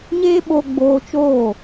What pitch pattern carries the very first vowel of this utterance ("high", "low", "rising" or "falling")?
high